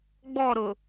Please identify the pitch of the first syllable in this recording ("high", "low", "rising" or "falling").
falling